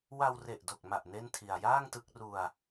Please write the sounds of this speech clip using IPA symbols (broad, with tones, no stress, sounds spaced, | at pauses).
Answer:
w a˧ w r e˨˩ ʔ d o˨˩ k̚ m a˨˩ ʔ n e˥˩ n tʰ i˧ a̯ j aː˥˩ ŋ t ɯ˦˥ k̚ r u˧ a̯